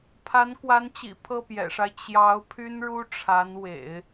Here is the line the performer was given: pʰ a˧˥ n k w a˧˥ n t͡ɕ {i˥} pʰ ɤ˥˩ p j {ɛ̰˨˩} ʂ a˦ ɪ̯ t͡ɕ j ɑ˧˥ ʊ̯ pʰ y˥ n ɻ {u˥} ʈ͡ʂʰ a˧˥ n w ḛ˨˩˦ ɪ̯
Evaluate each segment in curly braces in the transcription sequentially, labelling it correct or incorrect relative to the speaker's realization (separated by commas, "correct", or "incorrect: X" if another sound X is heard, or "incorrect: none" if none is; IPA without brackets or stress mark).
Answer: incorrect: ḭ˨˩, correct, correct